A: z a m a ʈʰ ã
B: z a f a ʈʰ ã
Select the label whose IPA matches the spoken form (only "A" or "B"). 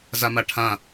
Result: A